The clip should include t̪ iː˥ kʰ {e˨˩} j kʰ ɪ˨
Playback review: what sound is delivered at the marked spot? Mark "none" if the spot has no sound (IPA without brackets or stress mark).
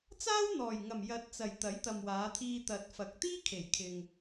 e˨˩